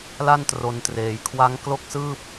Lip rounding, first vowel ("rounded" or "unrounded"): unrounded